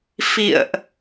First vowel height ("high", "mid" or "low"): high